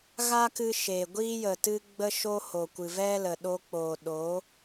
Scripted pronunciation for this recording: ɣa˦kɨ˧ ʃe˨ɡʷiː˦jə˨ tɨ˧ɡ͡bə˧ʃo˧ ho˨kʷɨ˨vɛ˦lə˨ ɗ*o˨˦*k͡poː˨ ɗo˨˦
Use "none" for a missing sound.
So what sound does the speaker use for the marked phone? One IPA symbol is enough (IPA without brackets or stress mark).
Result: o˧